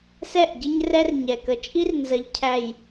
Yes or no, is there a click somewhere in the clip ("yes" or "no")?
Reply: no